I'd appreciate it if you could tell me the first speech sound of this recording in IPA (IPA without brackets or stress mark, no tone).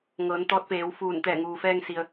ŋ